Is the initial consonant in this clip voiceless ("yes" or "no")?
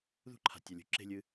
no